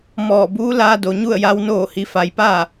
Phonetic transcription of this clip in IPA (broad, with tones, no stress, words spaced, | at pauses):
mɔː˧˩ buː˧˥laː˧ do˩ɲu˥˨ə̯ja˧˥w noː˥˨hi˧˥fa˧˥j paː˥˨